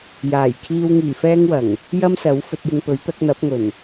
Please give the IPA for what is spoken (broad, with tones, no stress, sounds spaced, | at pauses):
j aː˨˩ j kʰ iː˧ w ŋ iː˨˩ f ɛː˥ ŋ w ɐ˨˩ ŋ | j ɐ˥ m s ɐ˨˥ w f ɵ˧ t̚ j ɪ˧ ŋ p ɵ˨˥ ɥ t̪ ɐ˨˥ k̚ n̪ ɐ˨˥ p̚ ŋ ɵ˨˩ n